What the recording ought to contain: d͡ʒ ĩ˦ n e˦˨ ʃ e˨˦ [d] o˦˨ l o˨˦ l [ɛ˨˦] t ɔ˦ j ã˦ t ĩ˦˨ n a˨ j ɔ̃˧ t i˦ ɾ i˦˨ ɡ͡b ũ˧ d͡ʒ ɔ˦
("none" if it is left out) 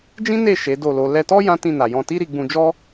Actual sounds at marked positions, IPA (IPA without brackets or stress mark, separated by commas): d, ɛ˧